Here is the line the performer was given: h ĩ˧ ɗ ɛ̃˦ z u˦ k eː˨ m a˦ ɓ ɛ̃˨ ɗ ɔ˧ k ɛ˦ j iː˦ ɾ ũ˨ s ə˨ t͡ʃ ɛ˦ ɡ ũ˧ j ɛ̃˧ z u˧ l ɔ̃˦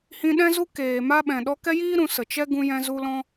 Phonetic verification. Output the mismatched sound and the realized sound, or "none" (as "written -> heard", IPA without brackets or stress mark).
none